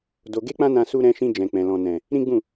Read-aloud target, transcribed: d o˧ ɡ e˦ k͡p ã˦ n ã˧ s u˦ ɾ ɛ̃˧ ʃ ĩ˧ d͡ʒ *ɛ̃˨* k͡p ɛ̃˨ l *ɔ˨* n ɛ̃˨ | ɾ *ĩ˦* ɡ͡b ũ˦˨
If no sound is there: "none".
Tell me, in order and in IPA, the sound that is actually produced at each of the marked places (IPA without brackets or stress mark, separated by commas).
ɛ̃˨, ɔ̃˨, ĩ˦